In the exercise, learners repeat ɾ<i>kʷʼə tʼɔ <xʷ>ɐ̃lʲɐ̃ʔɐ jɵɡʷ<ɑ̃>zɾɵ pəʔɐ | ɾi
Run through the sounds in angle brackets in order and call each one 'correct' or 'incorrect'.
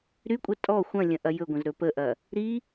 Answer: incorrect, correct, incorrect

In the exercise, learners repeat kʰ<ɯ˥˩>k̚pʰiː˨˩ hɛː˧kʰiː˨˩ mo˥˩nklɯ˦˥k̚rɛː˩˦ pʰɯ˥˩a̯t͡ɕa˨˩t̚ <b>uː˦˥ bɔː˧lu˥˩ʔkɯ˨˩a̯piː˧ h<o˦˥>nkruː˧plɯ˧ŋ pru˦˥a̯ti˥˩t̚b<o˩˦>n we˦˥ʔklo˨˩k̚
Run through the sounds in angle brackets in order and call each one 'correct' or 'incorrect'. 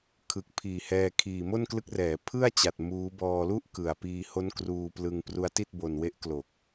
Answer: incorrect, incorrect, correct, incorrect

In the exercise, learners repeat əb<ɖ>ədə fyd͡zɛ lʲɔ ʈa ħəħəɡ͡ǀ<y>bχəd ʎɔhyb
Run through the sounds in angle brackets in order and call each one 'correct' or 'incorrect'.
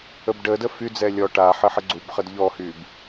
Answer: correct, incorrect

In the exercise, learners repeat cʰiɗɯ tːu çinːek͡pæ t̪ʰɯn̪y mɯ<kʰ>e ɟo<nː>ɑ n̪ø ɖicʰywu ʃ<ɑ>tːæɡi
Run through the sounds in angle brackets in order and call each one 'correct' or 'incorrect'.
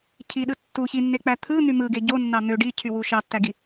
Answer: incorrect, correct, correct

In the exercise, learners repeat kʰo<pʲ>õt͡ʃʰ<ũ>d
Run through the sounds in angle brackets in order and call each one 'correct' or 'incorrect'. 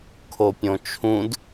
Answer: correct, correct

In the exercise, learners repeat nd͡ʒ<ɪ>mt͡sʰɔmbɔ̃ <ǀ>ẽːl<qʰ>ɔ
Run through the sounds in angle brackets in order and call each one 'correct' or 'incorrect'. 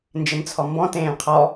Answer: correct, incorrect, correct

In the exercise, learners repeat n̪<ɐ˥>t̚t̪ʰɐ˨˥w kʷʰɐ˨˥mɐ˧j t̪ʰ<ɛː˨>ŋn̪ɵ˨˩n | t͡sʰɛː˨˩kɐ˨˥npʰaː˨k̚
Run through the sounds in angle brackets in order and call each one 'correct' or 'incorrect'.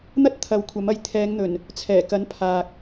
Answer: correct, incorrect

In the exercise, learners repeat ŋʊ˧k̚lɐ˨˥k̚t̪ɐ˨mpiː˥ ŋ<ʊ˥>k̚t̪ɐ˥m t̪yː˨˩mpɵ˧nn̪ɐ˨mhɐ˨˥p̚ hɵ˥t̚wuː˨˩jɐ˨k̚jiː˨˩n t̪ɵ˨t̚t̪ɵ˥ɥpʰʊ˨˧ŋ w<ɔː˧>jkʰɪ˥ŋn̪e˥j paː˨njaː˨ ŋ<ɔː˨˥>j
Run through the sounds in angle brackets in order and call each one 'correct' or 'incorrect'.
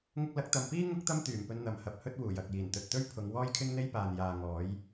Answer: correct, incorrect, correct

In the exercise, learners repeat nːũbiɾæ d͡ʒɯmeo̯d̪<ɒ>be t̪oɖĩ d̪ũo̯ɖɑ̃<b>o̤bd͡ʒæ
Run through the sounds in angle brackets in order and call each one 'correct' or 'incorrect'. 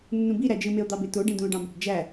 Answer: incorrect, correct

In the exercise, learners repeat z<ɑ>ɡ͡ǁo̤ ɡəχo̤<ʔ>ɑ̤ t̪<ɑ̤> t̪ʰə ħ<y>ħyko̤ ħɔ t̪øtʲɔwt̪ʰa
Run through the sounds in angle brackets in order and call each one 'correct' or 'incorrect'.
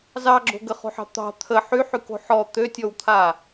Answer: correct, incorrect, correct, correct

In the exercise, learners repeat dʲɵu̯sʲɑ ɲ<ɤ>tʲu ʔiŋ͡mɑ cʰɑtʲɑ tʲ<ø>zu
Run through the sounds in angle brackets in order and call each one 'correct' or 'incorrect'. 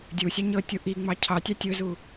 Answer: correct, incorrect

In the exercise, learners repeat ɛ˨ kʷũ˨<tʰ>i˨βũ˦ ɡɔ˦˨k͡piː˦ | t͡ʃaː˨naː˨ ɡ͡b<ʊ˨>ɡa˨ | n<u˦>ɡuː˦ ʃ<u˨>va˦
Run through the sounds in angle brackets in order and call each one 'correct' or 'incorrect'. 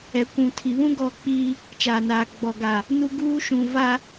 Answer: correct, incorrect, correct, incorrect

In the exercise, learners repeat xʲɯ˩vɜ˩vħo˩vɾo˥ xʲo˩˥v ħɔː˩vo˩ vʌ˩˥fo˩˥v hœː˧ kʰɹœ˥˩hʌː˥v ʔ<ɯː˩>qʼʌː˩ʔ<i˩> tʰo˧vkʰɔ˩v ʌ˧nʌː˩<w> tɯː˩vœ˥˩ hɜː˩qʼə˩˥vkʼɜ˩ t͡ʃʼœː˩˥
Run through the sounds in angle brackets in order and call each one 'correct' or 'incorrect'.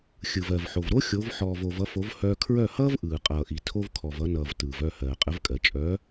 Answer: correct, correct, incorrect

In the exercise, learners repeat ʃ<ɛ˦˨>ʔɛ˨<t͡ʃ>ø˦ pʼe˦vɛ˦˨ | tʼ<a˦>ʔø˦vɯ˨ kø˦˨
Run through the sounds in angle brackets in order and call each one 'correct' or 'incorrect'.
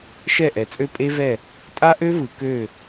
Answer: correct, incorrect, correct

